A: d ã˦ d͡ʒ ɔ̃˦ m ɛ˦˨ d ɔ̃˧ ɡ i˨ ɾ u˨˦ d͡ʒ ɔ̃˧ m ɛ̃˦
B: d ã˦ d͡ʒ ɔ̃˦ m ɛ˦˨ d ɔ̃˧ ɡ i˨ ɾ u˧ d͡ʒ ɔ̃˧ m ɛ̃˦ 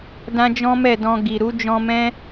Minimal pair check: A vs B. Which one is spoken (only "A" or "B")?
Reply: A